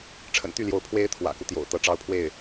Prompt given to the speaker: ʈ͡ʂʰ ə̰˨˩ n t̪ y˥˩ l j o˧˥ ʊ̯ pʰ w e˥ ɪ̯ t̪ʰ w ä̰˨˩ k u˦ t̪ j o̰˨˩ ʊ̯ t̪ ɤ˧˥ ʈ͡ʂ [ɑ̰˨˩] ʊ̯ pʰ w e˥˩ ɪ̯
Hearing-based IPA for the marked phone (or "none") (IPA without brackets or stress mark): ɑ˧˥